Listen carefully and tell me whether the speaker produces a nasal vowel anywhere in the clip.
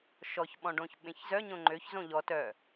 yes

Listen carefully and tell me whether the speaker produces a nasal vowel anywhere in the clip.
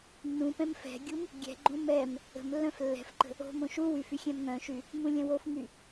yes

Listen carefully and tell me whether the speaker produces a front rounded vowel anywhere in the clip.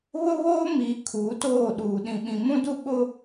no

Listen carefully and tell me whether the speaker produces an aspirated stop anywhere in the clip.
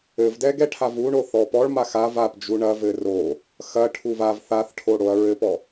yes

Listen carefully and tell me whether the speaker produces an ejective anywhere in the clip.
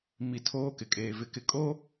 yes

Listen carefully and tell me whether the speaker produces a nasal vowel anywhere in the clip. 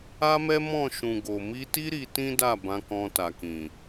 yes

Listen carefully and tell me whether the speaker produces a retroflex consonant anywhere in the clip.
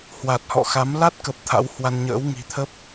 no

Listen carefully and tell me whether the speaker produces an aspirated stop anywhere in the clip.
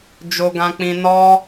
no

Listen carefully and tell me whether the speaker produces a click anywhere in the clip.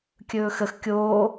no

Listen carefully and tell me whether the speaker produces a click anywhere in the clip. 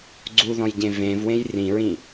yes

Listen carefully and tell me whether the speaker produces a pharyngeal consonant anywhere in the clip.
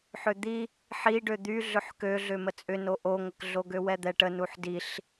yes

